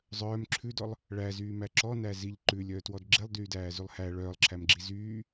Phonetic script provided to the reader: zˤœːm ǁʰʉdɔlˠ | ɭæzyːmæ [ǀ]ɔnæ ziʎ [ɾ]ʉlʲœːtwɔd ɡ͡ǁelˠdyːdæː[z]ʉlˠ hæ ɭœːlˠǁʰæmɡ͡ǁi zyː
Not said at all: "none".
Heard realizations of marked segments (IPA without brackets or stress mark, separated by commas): ǁ, ǃ, z